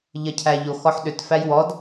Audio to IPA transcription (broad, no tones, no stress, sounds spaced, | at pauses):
ʎ ɐ cʰ æ ʎ o x ɔ ħ ɗ ʏ t f æ j w ɔ d